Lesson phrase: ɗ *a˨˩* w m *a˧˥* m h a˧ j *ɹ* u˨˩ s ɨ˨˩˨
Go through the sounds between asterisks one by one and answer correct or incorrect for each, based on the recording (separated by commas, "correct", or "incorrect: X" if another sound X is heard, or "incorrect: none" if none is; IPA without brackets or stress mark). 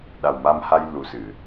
correct, incorrect: a˧, incorrect: l